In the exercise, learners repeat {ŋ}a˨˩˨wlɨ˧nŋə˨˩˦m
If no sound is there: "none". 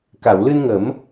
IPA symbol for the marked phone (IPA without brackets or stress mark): k